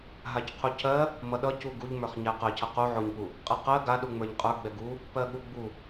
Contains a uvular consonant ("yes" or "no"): yes